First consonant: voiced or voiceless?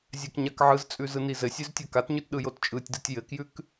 voiced